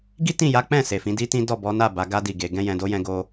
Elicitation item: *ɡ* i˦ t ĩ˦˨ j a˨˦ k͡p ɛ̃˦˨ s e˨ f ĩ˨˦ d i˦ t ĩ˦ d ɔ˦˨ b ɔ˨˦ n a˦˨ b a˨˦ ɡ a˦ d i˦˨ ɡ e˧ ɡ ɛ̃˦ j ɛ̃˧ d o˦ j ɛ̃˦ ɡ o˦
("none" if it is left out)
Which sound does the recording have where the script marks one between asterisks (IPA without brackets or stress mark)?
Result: ɡ